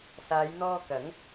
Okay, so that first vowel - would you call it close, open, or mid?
open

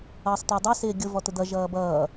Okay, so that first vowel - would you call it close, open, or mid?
mid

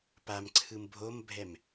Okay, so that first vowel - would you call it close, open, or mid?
open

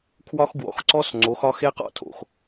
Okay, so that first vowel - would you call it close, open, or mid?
open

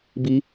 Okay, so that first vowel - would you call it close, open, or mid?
close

